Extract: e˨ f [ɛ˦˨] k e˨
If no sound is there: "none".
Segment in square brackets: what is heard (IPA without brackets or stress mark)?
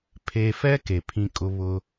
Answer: ɛ˦